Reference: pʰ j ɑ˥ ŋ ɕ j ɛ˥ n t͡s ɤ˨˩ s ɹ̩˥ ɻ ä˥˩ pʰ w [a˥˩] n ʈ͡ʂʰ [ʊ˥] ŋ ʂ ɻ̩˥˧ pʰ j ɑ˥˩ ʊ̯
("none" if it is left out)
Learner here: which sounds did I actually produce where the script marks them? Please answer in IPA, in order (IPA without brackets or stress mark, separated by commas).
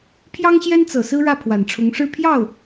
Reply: a˨˩, ʊ˧˥